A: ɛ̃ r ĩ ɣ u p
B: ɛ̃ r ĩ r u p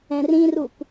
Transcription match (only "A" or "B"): B